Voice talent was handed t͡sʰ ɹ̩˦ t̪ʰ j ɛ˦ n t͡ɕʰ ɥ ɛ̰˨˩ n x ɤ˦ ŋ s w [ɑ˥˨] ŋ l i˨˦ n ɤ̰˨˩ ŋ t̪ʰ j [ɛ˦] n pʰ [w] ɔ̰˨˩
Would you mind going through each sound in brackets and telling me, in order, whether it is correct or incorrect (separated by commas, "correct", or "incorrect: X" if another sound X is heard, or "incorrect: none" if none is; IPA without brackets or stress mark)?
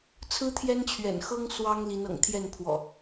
incorrect: ɑ˦, incorrect: ɛ˥˨, correct